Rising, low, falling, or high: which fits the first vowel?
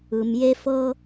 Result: low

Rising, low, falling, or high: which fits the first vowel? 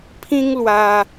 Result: high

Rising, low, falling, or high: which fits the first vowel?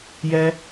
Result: high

